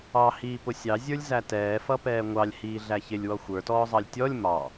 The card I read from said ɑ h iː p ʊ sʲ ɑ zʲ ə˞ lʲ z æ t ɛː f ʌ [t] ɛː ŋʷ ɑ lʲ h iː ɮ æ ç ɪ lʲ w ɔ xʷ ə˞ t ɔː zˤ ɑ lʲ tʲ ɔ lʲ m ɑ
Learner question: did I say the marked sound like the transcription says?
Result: no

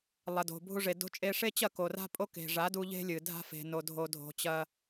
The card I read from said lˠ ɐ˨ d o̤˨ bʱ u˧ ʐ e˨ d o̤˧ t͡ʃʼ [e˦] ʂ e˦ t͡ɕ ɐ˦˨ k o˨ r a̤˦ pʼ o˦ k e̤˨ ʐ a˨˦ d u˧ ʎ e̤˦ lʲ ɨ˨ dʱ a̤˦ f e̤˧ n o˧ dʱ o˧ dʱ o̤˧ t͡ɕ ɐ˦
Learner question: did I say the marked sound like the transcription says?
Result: no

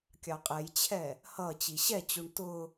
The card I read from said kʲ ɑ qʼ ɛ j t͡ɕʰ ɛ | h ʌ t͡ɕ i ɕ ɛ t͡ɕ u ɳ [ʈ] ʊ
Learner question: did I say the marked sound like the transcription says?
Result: no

